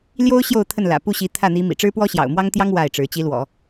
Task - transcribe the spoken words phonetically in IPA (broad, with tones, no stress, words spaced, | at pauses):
ljo˥ʊ̯ ɕjo˥˧ʊ̯t̪ʰə˥˩nlä̰˨˩ pu˥˩ɕi˧˥ t̪ʰä˥˩n̪i˧˥ mḭ˨˩ʈ͡ʂɻ̩˥pwɔ˥ ɕjɑ̰˨˩ʊ̯mwɑ˥ŋt̪jɑ˥ŋ wa˥˩ɪ̯ʈ͡ʂɻ̩˧˥ t͡ɕi˧˥lwɔ̰˨˩˦